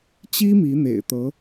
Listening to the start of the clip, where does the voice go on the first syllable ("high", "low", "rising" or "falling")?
high